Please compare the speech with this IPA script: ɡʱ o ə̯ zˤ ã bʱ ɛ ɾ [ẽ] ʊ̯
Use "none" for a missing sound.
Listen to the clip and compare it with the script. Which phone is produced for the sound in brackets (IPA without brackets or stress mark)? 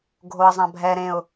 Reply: ẽ